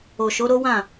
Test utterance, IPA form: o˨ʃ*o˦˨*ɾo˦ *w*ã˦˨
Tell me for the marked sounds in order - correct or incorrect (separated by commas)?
incorrect, correct